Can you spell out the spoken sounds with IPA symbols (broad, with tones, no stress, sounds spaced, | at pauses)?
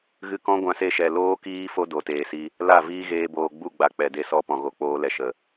ɣ ɨ˧ k ɔ̃˦ ɡʷ ã˧ s e˧ ʃ ɛ˨ l oː˦ k iː˦ f o˦ d o˨ t eː˨ s i˧ | l a˦˨ v iː˦ ɣ eː˧ b oː˨ ɡ͡b u˦˨ ɡ͡b a˧ k͡p ɛ˨ d e˦˨ s ɔ˦ p ɔ̃˨ ɣ o˨ k͡p oː˦ l ɛ˧ ʃ ə˨